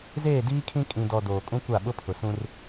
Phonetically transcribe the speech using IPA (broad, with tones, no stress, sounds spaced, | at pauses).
z eː˦˨ d iː˦ kʰ ĩ˦ kʼ ĩ˨ d ɔ˨ d oː˨ kʼ ũ˦ kʷ a˦˨ ɓ ʊ˦ pʰ ʊ˨ s ũ˦ r